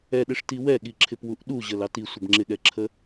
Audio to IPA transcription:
ɛɗɪʂti wɛɠiǁʰɪpwuʔ ɗuʑəlɑ tisʷəb ŋ͡ǁɪɠɛǁʰə

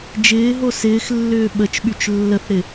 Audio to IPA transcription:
d͡ʒɪːɦo sɪːxlːʏː ɓət͡ʃɓyt͡ʃ lːəθɾɪ

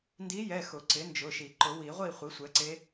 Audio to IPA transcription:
ndi˧˥jɛ˩˧˩xʊ˨˩˦ ǀɪ˩˥nd͡ʒʊ˩˧˩ʃi˨˩˦ ǃʊ˨˩˦wi˨˩˦ʁʷi˥˨ χʷi˩˥sʷɛ˩˥ǀe˧˥

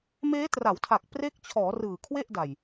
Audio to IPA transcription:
meː˦˥tra˩˦wtʰa˨˩k̚ pre˦˥k̚t͡ɕʰɔː˩˦ rɯː˨˩kʰwe˥˩ʔ da˨˩j

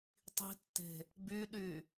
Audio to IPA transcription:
tˤi̤tːe̤ | byɗy

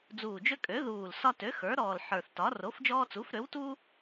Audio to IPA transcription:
d͡zuː˨˩d͡ʒø˦ kʼø˩˥ ðuː˨˩l sɒ˦tø˩˥ xə˞˩˥ɾɔː˨˩l ħə˞˨˩θtɒ˩˥ ro˩˥fd͡ʒɔː˦t͡su˩˥fɾø˩˥w tu˦

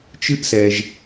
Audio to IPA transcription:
t͡ʃɨ˥ʔsɛ˩ʒ

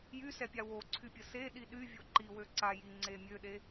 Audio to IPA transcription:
jysɛpʲa woǀʰypʲə seɗi ɗyvʲo ǃiwø ǀajiŋ͡ǀe mʲøɗe

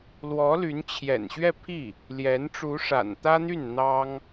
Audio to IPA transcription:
lwɔ˧˥ly˧˥n t͡ɕʰjɛ̰˨˩nɕɥɛ˥˧pʰi˥˩ | ljɛ˧˥n ʈ͡ʂu˧˥ʂa̰˨˩n t̪ä˥n̪y˥˩n n̪ɑ˥ŋ

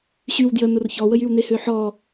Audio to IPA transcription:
ɕyw djə nʊrçɔwəjyw nehøħɔ

